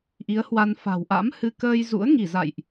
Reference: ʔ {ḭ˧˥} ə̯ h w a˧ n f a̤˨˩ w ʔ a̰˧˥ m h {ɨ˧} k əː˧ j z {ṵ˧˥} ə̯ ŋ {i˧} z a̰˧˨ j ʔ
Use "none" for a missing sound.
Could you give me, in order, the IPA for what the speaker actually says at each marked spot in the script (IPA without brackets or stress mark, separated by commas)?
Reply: i˨˦, ɨ˧, ṵ˧˥, i˧˩